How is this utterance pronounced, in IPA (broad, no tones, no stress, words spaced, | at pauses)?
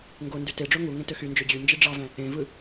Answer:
ŋɡondy teɖ͡ʐo ŋu ŋẽtøxynd͡ʒø d͡ʑy nd͡ʒiɖ͡ʐɑvæ̃ | ẽvɯ